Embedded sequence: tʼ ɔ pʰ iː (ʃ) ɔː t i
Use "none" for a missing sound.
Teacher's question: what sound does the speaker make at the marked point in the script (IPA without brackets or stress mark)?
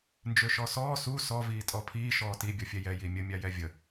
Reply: ʃ